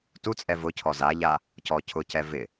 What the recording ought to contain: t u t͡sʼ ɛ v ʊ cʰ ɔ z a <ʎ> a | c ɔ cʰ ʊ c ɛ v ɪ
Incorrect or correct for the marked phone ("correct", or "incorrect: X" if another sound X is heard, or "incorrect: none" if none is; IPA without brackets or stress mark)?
correct